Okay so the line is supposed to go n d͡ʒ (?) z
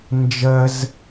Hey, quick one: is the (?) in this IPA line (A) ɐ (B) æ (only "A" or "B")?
A